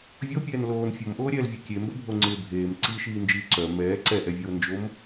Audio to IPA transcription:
vʲ o pʲ ɛː n l oː n fʲ o m ʔ oː ɾʲ ɛː l vʲ o kʲ e m b œ bʱ o ŋ͡ǀ ɪː bʱ eː m ǀ i ʃ iː n d͡ʒ iː ǀ œ m ɛː ǀ ɛ ʔ ɛ vʲ oː n d͡ʒ o m

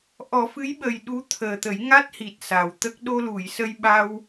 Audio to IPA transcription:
ʔ ɔ˨˩˦ f ɨ˧˥ j ɓ ə˨˩ j ɗ u˧˥ t̪ʰ əː˨˩ t̪ ə˨˩˦ j ŋ a˦˥ t̚ h i˨˩ t̚ s a˨˩ w t̪ ə˦˥ k̚ ɗ o˧ l u˨˩˨ j s ə˧ j ɓ a˧ w

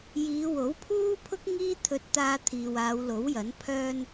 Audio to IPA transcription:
j iː˨˧ w o˨˥ w pʰ uː˥ pʰ ʊ˥ k̚ ŋ iː˥ t̪ʰ ɵ˧ t̚ t̪ aː˧ t̪ʰ iː˨ w aː˨˧ w l o˨˥ w j ɐ˨˥ n pʰ œː˧ n

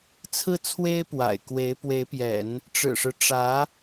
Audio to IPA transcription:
t͡sʰ ɹ̩˥˩ t͡sʰ w e˥ ɪ̯ p w a̰˨˩ ɪ̯ k w e˧˥ ɪ̯ p w e˧˥ ɪ̯ p j ɛ̰˨˩˦ n | ʈ͡ʂ ɻ̩˨˩ ʂ ɻ̩˦ ʈ͡ʂ ä˧˥

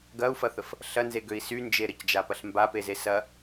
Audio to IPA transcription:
ɡ ɐ u̯ f ɐ θ ə f | ɬ ɐ n z e ɡ ø i̯ s y n d͡ʒ e ɾ ə c d͡ʒ a p ɐ ɬ m b a p e z e s ɐ

